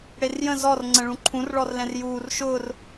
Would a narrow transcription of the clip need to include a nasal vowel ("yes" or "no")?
yes